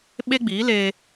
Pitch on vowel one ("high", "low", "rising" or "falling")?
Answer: high